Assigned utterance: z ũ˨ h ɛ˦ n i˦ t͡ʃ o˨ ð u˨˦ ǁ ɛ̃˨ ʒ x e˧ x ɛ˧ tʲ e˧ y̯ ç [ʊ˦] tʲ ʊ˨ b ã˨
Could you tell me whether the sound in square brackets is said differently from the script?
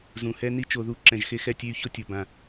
no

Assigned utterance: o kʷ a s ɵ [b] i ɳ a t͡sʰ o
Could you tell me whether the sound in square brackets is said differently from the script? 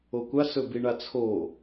no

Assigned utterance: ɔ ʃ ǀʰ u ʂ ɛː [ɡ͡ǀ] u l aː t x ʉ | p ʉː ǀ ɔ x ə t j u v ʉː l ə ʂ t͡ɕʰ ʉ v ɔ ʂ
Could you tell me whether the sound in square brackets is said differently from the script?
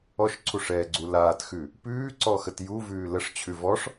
no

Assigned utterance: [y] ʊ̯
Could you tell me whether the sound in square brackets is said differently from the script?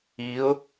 yes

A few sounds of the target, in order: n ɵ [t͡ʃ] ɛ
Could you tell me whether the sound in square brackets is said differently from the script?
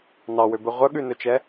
no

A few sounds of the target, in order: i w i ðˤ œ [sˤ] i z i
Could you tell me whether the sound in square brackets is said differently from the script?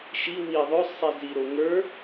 no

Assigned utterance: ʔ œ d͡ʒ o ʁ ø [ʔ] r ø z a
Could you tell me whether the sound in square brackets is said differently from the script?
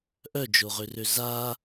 yes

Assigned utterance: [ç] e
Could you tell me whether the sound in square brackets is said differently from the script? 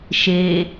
yes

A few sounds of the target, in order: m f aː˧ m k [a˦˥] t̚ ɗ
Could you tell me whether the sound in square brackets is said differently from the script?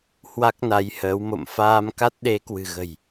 no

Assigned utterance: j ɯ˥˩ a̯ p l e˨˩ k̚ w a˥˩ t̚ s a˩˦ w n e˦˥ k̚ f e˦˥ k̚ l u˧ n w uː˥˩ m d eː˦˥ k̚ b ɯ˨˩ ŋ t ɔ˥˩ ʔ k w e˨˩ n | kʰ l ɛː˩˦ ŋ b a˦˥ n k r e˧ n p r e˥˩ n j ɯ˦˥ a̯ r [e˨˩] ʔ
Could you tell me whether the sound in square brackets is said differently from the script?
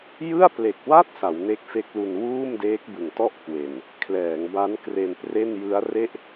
yes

